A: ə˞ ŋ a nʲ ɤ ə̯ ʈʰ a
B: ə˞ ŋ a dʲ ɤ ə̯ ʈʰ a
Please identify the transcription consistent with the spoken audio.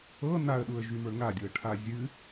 B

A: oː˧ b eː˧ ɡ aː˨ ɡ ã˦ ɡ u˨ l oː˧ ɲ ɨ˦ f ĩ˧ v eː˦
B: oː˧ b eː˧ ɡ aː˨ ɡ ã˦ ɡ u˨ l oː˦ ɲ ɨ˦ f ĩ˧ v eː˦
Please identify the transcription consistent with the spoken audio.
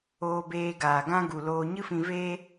A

